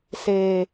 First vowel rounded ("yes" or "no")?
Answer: no